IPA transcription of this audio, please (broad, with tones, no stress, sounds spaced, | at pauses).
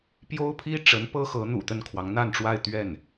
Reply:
p j o˥ ʊ̯ pʰ i˥ ʈ͡ʂ ə˧˥ n p ɤ˥ x ɤ˧˥ n̪ ṵ˨˩ t̪ ə˥˩ n kʰ w ɑ˧˥ ŋ n̪ a˥˧ n ʈ͡ʂ w a˥˧ ɪ̯ t̪ ɥ ɛ˥˩ n